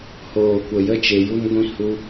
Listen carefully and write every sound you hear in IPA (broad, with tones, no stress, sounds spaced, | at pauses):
h oː˨ kʷ ə˨ j ə˦ t͡ʃ e˧ j u˦ n ɡʷ ĩ˦ h u˧